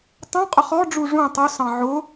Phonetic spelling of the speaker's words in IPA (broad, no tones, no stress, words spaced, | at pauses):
tˤũ qʼəχɔɖ͡ʐu ʐũ tˤʊsɑ̃ ʕʊ